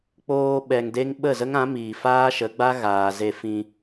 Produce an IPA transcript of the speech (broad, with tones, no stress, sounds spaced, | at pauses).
k͡p oː˧ ɓ ɛ˨ ŋ d e˦ ŋ ɓ ə˦˨ z ə˦ ŋ ã˨˦ m iː˨ f aː˦ ʃ ə˨˦ ɡ͡b a˦ ɣ aː˨ z e˧ f ĩ˧